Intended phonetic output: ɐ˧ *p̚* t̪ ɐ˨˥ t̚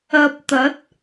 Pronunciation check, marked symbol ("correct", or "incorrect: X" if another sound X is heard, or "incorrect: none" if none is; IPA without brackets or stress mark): correct